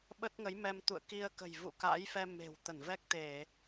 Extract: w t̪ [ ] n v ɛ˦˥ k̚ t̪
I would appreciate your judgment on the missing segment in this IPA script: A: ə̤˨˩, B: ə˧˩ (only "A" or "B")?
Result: B